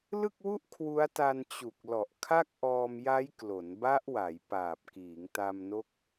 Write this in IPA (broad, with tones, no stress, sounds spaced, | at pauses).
l ɯ˥˩ k̚ w u˥˩ ʔ kʰ w u˦˥ a̯ t a˧ n t͡ɕ u˨˩ k̚ l ɔ˨˩ ʔ kʰ a˥˩ k̚ ʔ ɔː˧ m j a˦˥ j k l o˩˦ n b a˦˥ ʔ w a˩˦ j p aː˨˩ p̚ k iː˩˦ ŋ t a˧ m n o˦˥ k̚